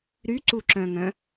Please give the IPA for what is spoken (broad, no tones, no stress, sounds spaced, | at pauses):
ɾ y ǀ u ǁ œ̃ ŋ œ̃